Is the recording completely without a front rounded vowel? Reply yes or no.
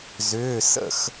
no